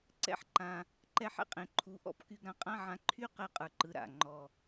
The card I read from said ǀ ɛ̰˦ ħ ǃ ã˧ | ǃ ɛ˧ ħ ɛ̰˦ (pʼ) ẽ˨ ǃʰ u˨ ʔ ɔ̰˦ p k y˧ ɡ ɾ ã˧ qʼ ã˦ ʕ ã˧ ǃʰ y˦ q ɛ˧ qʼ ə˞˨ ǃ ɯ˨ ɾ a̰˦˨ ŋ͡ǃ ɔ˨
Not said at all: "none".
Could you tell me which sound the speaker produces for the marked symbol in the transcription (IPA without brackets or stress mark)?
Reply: qʼ